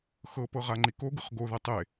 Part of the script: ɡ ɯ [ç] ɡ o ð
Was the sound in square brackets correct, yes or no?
no